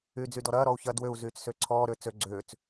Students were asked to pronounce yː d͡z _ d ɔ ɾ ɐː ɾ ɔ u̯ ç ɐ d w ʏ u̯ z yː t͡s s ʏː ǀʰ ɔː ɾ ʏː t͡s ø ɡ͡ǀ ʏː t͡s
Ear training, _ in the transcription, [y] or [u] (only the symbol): y